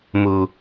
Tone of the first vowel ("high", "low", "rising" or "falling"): low